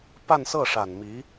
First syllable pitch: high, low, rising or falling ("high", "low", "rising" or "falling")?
falling